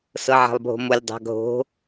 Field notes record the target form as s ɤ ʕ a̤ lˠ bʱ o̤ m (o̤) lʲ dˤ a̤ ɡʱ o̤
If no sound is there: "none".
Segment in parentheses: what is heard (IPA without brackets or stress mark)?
o